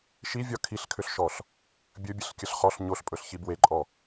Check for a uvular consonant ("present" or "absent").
present